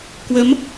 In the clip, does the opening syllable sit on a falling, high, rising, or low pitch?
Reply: rising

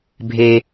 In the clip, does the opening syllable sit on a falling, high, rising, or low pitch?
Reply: low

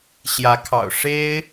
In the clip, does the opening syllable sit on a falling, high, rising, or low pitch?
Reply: rising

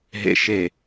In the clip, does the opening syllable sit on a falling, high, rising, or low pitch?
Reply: low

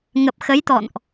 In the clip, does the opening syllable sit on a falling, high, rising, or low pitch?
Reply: low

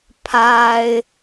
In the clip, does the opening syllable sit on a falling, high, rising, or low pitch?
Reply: low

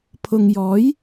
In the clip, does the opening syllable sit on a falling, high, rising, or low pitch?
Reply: low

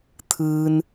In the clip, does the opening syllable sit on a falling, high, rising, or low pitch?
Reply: low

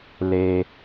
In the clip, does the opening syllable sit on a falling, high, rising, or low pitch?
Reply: high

